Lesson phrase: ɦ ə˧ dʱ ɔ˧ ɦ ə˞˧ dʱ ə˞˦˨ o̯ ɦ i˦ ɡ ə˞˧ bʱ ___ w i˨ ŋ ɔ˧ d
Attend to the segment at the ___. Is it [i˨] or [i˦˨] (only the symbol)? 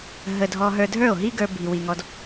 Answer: i˨